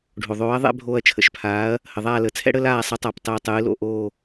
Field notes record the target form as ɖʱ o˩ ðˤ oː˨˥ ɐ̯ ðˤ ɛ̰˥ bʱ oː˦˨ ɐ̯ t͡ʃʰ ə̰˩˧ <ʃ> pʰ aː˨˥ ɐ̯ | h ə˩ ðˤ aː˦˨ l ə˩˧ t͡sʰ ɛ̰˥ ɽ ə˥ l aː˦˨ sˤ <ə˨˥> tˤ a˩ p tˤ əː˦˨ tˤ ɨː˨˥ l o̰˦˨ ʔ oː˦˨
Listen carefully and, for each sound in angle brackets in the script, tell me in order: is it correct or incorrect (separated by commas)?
correct, correct